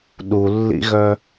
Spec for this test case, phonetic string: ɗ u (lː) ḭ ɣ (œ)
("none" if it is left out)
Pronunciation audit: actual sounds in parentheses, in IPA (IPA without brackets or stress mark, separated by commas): lː, œ